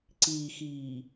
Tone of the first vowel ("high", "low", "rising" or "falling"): low